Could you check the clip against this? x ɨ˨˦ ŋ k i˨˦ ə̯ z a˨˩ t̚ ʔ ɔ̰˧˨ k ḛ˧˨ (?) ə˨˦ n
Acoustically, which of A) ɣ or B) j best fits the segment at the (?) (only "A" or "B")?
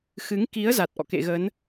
A